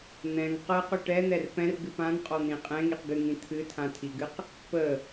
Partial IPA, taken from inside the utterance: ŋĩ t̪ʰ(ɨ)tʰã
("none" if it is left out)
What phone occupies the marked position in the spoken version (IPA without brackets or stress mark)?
ɨ